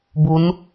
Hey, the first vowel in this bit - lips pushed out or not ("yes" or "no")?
yes